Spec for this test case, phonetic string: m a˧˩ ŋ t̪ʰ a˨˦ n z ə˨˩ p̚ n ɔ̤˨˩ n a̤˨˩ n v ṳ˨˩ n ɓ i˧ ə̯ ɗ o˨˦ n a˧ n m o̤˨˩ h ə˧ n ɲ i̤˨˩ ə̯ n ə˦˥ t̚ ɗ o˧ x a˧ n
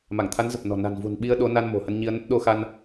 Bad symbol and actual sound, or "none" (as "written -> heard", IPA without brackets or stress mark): i̤˨˩ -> i˧